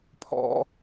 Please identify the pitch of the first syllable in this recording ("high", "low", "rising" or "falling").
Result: high